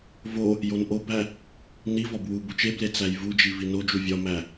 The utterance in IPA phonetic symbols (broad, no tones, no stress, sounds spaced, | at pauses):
v o | j o n ʔ o b æ | n i v ɒ b w u b u t͡ʃ e b l e t͡s æ j v u d͡ʒ i v i n o d͡ʒ u vʲ ɒ m æ